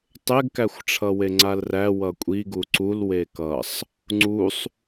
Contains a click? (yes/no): yes